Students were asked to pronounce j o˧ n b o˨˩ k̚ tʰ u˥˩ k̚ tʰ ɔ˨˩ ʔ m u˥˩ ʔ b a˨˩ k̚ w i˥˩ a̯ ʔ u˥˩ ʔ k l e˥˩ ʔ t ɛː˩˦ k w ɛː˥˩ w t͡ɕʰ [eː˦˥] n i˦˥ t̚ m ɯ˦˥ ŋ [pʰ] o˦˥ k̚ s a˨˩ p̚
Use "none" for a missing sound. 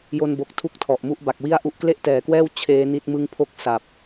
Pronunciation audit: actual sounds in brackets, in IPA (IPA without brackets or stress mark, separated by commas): eː˦˥, pʰ